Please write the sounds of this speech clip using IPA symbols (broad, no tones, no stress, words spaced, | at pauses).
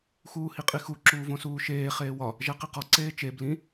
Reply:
xuːhiqʼixu ǁuːvõsuːʃeː χeːwɒ | ʒæqiqɒ ǀeːt͡ʃe blĩ